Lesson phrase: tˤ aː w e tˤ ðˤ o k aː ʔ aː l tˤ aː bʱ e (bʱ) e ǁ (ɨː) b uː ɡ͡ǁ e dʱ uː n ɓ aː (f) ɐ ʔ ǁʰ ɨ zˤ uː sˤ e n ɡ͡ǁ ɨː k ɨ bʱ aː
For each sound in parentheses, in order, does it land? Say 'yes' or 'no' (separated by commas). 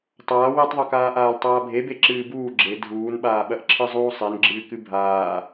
no, yes, no